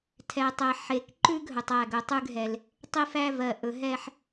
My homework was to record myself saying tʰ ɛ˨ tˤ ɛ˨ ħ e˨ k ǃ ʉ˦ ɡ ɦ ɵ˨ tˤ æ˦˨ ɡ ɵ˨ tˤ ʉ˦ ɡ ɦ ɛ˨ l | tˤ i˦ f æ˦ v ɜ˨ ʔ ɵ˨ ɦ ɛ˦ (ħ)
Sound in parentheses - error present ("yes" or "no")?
no